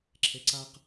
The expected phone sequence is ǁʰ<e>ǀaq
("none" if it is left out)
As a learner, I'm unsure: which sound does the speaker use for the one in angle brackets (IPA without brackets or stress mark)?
e